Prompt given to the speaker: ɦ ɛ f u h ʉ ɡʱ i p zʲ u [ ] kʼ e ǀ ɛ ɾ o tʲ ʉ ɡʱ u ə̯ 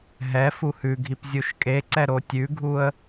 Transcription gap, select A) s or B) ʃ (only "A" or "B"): B